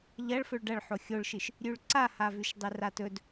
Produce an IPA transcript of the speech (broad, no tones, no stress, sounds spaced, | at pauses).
ʎ ɐ ɭ f ɵ ɭ ɖ ɐ ɭ ħ o xʲ o ɭ ʃ ɨ ʃ | ɾʲ ʉ ɭ ǀ a h a v ʉ ʃ dˤ e r a t ɵ d